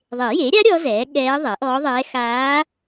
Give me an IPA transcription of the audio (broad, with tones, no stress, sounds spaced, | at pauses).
ðˤ e˨˩˦ j e˩˥ ɾʲ a˧˥ ɾʲ ɔ˧˥ z ɛː˩˥ ɠ ɛː˧˥ ðˤ ɛ˩˥ ʔ ɔː˧˥ ðˤ ɛː˧˥ x aː˧˥